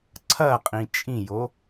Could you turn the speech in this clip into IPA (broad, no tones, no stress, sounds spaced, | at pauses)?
ǀʰ ɐ qʼ ĩ t͡ʃʼ ĩ j o